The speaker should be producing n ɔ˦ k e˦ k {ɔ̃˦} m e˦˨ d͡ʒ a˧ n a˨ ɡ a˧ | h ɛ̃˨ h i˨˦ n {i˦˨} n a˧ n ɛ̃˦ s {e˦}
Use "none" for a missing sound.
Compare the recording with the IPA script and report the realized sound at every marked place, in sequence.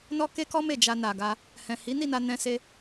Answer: ɔ˦, i˦˨, e˦

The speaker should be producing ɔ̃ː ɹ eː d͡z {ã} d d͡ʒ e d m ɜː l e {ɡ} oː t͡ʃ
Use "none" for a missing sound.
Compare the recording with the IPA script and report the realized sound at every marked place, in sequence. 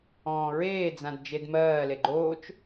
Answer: ã, ɡ͡ǃ

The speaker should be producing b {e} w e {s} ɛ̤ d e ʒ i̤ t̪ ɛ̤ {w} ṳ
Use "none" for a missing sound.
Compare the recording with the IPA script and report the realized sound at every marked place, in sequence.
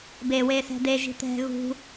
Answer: e, s, ɣ

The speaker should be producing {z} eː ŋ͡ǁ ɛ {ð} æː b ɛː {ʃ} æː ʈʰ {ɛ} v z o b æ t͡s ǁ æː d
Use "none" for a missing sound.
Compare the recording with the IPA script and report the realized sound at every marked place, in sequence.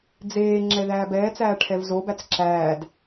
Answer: d͡z, ð, t͡s, ɛ

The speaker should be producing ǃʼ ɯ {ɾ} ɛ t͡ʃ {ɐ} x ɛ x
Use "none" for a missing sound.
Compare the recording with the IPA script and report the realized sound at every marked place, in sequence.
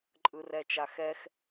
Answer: r, a

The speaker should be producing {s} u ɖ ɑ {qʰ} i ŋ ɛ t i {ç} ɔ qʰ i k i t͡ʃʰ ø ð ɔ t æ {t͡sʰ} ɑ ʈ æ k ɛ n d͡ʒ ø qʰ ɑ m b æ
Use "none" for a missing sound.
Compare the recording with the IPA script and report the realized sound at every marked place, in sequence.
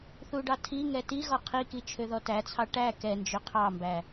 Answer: θ, tʰ, ɣ, t͡sʰ

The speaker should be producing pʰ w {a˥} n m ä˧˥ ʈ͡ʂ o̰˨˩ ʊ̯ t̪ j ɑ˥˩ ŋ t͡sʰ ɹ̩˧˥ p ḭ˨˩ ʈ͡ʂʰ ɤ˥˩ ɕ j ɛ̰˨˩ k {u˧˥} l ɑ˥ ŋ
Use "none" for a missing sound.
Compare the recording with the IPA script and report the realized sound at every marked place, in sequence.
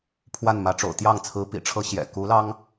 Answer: a˥˩, u˧˥

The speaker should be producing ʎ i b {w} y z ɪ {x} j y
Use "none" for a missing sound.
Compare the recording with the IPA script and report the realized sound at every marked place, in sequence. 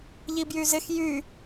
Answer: j, x

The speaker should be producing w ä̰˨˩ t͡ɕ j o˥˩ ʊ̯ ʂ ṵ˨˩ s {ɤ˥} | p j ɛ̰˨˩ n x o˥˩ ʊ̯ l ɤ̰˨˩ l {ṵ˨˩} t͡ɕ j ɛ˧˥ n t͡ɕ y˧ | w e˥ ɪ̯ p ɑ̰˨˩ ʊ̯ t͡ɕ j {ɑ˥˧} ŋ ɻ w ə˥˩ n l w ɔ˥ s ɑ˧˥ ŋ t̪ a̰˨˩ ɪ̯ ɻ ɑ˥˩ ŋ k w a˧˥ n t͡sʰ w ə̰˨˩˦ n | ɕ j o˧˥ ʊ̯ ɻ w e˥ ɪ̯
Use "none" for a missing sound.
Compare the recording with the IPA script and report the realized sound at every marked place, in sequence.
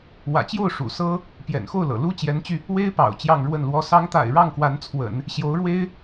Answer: ɤ˥, u˥, ɑ˥˧

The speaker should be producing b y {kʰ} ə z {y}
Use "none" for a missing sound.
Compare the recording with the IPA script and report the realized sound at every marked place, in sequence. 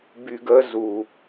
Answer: ɡ, u

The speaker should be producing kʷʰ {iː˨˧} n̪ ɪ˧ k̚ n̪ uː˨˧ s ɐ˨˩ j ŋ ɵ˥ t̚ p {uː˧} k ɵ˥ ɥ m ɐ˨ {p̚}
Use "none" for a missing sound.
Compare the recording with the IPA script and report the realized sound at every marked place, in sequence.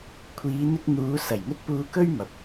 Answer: iː˨˧, uː˧, p̚

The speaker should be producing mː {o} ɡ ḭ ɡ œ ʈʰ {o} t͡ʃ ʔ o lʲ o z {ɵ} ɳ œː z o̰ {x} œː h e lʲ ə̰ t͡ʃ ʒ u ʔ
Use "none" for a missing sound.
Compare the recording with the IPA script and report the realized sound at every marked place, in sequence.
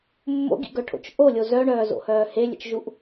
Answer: o̰, o̰, œ, h

